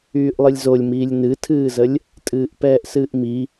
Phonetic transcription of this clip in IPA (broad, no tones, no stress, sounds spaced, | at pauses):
yː ʔ lˠ ɨ lʲ z o lʲ m iː lʲ n ɨ tʰ ɨː z ə lʲ | tʼ ɨː ʔ p ɛː ʔ s ɨː ʔ m i